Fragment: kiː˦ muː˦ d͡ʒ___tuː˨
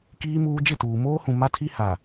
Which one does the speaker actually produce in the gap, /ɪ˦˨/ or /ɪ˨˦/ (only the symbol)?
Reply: ɪ˦˨